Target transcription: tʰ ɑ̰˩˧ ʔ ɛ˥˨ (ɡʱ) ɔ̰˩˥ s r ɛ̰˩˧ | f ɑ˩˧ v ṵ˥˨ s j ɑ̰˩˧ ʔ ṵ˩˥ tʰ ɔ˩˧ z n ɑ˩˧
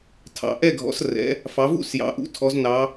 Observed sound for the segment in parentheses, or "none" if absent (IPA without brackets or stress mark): ɡʱ